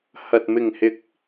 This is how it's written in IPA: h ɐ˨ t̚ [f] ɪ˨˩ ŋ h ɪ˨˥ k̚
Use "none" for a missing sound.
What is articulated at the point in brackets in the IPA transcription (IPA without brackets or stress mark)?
m